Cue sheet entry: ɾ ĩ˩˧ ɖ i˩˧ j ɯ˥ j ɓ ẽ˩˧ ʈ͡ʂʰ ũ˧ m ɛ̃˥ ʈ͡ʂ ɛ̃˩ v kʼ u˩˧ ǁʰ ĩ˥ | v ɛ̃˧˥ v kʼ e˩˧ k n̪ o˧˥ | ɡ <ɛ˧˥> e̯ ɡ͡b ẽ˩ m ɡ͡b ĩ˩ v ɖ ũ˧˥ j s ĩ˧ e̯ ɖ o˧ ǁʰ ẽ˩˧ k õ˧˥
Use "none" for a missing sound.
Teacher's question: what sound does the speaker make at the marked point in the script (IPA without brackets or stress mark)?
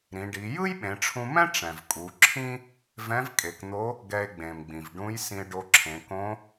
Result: ɛ˧